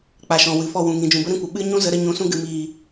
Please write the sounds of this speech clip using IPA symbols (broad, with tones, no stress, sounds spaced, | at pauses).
k͡p a˨ ʃ ɔ̃˨ w ɨ˨ f ɔ˦˨ w ũ˨ ŋ ĩ˨ d͡ʒ ũ˨ b ə˦ ɾ ĩ˦ kʷ ə˨ ɓ ɨ˦ ɲ ũ˦ z ə˨˦ ɾ ə˧ ɲ ũ˨ s ũ˧ ɡ ɨ˨ m iː˨